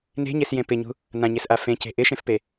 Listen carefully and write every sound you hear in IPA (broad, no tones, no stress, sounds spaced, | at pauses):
n e̤ ɲ e s j ẽ p ɪ ɲ ṳ | n ã ɲ e s ʔ a f ẽ c e̤ ʔ ɪ ʃ ẽ f p e